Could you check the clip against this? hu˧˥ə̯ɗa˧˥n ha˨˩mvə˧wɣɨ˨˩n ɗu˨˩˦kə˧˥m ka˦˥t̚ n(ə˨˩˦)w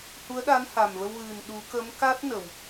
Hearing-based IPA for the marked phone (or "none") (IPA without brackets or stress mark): ə˨˩˨